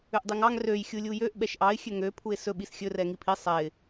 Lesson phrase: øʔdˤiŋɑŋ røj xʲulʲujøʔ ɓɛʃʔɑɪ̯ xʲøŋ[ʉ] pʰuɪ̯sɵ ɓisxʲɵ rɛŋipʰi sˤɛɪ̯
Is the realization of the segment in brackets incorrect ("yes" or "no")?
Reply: yes